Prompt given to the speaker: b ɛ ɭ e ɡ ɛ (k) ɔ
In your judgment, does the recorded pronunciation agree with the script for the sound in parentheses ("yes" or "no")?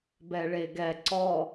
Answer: no